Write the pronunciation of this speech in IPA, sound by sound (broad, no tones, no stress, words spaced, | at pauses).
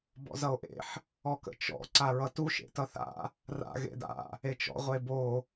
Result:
bɔ̰zʌo̯ʔḛħ | ɔkə̰t͡ʃɔ̰ ǀaɹʌtu ʃḛtʌθa̰ | ra̰ ɣḛda̰ | et͡ʃɔ̰ ʁʷebo